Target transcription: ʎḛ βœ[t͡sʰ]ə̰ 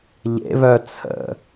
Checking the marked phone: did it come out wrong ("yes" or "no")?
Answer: no